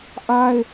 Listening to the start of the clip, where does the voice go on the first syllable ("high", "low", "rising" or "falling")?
high